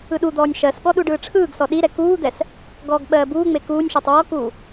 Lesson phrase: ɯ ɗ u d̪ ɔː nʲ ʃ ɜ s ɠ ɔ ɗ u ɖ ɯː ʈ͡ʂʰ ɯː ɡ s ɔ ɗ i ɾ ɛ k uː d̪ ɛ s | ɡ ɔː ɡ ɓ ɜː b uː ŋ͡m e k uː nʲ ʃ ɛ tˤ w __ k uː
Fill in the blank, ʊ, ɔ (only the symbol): ɔ